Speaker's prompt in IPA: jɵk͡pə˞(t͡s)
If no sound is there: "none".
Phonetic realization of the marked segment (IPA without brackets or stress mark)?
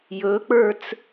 t͡s